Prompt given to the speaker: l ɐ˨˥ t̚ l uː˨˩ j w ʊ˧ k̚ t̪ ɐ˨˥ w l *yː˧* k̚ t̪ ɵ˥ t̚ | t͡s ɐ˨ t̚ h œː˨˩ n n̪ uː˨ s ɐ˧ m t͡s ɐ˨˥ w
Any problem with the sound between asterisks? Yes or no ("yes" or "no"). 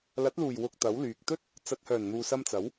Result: yes